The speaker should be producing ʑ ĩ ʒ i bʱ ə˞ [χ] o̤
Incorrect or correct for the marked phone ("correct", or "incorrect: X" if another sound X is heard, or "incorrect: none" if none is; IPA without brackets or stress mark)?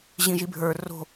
incorrect: r